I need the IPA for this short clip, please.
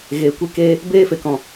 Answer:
ɣ eː˧ kʷ e˦ k eː˦ | b eː˦ f e˧ k ɔ̃˧

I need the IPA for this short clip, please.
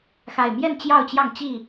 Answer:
x a˨˩ ɪ̯ m j ɛ˥˨ n t͡ɕ j ɑ˥˨ ʊ̯ t͡ɕ j ɑ˥˨ ŋ t͡ɕ i˥˨

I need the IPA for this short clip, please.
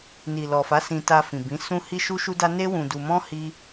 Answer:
n i˨ l ɔ˨ f a˨˦ s ĩ˧ t a˧ f ĩ˨ b ĩ˨˦ s ũ˦ h i˦ ʃ u˦ ʃ u˦ d a˦ n e˦ w ũ˧ d u˧ m ɔ̃˦ h i˦

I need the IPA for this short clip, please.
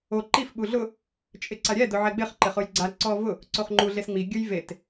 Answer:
o ǃ i f ɓ u ɮ ʊ | t͡ʃʼ ɪ ǀ a ɾʲ ɛ d ʊ ʕ ɛ ɡ͡b ɪ χ ǃ ɪ χ ʊ j ɡ͡ǀ a ǀ ɔ v ʊ | ǀ o χ ŋ͡ǃ u ɮ e s ŋ͡m i ɡʲ ʊ j v e t

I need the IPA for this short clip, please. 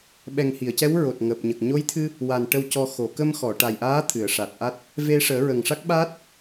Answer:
ɓ ɛ˨˩ ŋ h i˨˩˨ ə̯ c ɛ˧˥ w ɹ o˨˩ t̚ ŋ əː˨˩ p̚ ɲ ə˨˩ k̚ ɲ o˧˥ j t̪ʰ ɨ˧ | w a˨˩ n ʈ ə˧ w c ɔ˧ x o˨˩˨ k ə˧ m x ɔ˨˩˨ ʈ a˨˩ j ʔ aː˧˥ t̪ʰ ɨ˨˩˨ ə̯ ʂ a˨˩ t̚ ʔ a˦˥ t̚ | v e˧ ʂ əː˨˩˦ ɹ ə˨˩ ŋ ʂ a˦˥ k̚ ɓ aː˦˥ t̚

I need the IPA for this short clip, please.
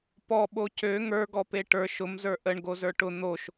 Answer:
p ɔ ɓ o c ø ŋ ə˞ ɡ ɔ p e ʈ ə˞ ʃ ʊ m z ə˞ ʔ ə ɳ ɡ o z ə˞ ʈ ʊ n̪ o ʃ

